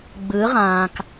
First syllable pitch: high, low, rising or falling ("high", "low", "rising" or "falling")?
rising